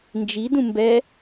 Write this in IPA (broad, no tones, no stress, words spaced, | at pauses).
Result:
nd͡ʒi dũmbɛ